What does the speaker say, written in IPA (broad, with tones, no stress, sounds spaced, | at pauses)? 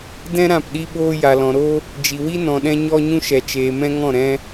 d ɛ̃˦ ɾ ã˦˨ p ɗ i˦ ɓ oː˦ j a˨ l ɔ̃˨ ɾ oː˦ | d͡ʒ i˨ w i˦ n ɔ̃˨ ɗ ɛ̃˧ ɲ ɔ˦ ɲ ũ˦ ʃ ɛ˨ t͡ʃ eː˨ m ɛ̃˦ ŋ ɔ̃˦˨ ɾ ɛ̃˦